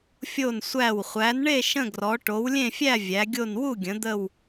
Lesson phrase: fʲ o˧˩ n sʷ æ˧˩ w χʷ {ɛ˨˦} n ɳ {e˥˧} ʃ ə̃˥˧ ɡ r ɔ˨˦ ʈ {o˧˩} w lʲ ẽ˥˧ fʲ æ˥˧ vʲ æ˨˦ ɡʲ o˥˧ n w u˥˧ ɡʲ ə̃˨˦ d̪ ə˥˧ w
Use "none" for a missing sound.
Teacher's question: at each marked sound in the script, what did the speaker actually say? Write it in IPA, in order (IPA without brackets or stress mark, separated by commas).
æ˨˦, e˥˧, o˨˦